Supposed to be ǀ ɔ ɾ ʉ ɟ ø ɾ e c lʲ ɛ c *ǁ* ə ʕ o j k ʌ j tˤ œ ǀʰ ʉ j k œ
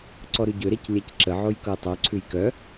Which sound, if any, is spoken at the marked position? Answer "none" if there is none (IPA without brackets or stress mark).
ǁ